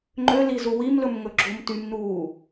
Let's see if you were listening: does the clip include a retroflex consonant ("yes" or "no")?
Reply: no